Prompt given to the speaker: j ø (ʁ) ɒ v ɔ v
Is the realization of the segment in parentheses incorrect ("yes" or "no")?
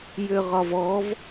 no